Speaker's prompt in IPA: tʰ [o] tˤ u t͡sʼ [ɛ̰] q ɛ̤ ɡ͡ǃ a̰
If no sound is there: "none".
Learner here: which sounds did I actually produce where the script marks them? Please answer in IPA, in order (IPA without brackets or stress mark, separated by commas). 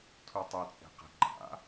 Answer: u, ɛ̤